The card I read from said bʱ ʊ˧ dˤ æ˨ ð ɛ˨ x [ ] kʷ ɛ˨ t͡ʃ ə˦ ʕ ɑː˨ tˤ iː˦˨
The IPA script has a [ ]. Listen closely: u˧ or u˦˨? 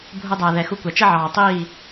u˧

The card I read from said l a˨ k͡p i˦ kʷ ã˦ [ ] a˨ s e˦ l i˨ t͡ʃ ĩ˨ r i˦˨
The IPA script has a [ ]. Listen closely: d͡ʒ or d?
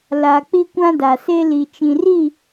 d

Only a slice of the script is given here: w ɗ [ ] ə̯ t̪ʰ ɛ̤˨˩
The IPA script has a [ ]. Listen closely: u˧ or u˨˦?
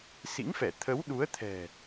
u˨˦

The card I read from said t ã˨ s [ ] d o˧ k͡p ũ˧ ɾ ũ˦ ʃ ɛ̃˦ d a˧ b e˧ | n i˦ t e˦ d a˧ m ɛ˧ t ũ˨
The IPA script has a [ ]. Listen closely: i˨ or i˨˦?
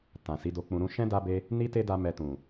i˨˦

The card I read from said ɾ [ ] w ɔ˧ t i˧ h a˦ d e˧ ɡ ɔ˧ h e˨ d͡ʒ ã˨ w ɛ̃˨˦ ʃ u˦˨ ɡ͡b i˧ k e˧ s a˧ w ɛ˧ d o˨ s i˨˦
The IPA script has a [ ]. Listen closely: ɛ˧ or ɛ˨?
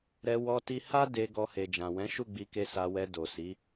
ɛ˧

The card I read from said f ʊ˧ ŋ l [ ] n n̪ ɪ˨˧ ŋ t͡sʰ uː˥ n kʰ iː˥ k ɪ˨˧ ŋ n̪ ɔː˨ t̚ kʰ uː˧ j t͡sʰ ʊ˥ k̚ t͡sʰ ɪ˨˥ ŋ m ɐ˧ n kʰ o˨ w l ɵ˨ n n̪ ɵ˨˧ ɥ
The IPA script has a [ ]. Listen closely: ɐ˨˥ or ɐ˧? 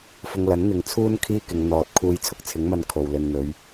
ɐ˨˥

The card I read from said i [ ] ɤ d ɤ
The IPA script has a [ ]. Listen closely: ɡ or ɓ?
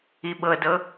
ɓ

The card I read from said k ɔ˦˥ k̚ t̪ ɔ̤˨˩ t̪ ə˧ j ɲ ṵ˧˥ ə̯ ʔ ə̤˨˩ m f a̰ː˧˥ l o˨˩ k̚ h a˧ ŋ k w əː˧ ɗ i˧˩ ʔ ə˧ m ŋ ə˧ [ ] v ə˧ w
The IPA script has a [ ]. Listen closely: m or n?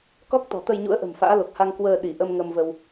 m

